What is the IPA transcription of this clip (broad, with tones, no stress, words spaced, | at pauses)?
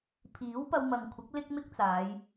pʰiː˨˥wpɐ˧wmɐ˨ŋ kʷʰɪ˨˥k̚ lɪ˥k̚mɪ˥k̚t͡saː˨˧j